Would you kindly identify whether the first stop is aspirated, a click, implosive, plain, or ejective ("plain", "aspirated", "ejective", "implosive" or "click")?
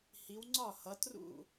click